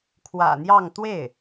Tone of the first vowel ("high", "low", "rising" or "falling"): low